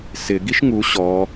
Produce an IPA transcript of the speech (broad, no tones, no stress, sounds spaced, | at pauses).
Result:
s ɪ ɡ i ʃ ŋ u ɕ ɔ